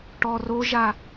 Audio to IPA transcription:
ʈ ɔ r o ʒ a

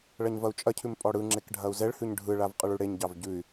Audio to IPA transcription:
ɭ ɐ ɲ v ɐ u̯ t͡ʃʼ ɐ cʰ ʉ m pʼ ɔ ɽ ɯ ŋ͡ǁ e k ɖʱ ɐ u̯ z ɛ ɭ h ʉ ɲ ɖʱ ɯ ɭ a v qʼ ɯ ɭ ʉ ɽ e ɲ ɟ ɑ v ɟ ʉ y̯

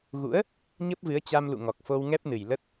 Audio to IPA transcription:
ɣ ṵ˧˥ ə̯ | ɲ ə˦˥ p̚ v ɨ˨˦ ə̯ t͡ɕ a˧ m l ṵ˧˨ ŋ ɔ˨˩ k̚ f o˧ w ŋ ɛ˦˥ p̚ n ɨ˨˩ j l ə˦˥ t̚

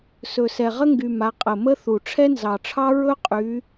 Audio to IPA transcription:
s ɵ˨˩ s ɛ˨˩ ʁ ə˥ ŋ ɡ y˨˩ m a˨˦ qʼ ə˨˩ m ə˥ θ u˨˩ ʈ͡ʂʰ ɛ˥ n z ɑ˨˩ ʈ͡ʂʰ ɑ˥ ɹ ɵ˥ qʼ y˨˦

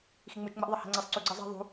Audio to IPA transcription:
x i ŋ͡m ɯ t͡ʃ ŋ͡m ɛ ʔ ðˤ ʌ h ɛ̤ ŋ͡ǀ e sˤ ǀ y ɡ͡ǀ ʌ zˤ ɛ̤ ðˤ ṳ

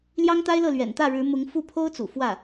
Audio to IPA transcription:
l j ɑ˥ ŋ t̪ a˥ ɪ̯ l ɤ˥˩ l ɥ ɛ̰˨˩ n t̪ ä˥˩ ɻ ɻ̩˧˥ m ʊ˧˥ ŋ f u˥˩ pʰ o˥ ʊ̯ t͡s ṵ˨˩ f w ä˥˩

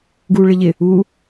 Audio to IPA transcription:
ɡ u ɭ ɪ ʎ ɪ | u

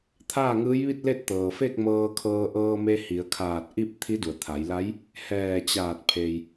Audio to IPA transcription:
t̪ʰ aː˥˨ ŋ ɯː˧˥ j ʋ i˥˨ t̚ l e˥˨ t̚ t̪ ɤː˩ f e˥˨ k̚ m ɤː˧ kʰ ɤː˧ ʔ ɤː˧ m e˧ h i˩˧ ə̯ kʰ aː˧˩ t̚ ʔ i˥˨ p̚ t̪ʰ i˧˥ d u˩ ə̯ t̪ʰ a˩˧ j l a˧˥ j | h ɛː˧˩ t͡ɕ aː˧˩ t̚ pʰ e˩ j

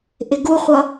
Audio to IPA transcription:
ʔ ɪ ɡ u χʷ ʌ

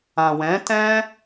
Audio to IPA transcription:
ã˨ w ɛ̃˨˦ t ɛ̃˦

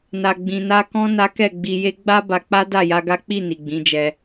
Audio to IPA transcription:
n a˨ ɡ͡b ĩ˨ n a˧ k ɔ̃˦ n a˦ k ɛ˦˨ ɡ͡b i˧ j e˦ ɡ͡b a˦ b a˧ k͡p a˦ d a˦˨ j a˧ ɡ a˦ k͡p i˦˨ n i˨ ɡ͡b ĩ˨˦ d͡ʒ ɛ˧

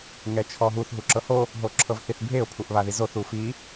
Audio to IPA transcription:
ŋ ɛ t͡ʃʰ ɔ ɦ u θ ɦ u ǁ ɤ h o | ɦ o ǁʰ ɤ v θ i θ bʱ e ʊ̯ pʰ u ʔ β a ð i z o θ u f i

